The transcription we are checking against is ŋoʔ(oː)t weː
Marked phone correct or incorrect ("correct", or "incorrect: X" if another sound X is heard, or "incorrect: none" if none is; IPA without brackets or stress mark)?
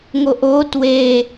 correct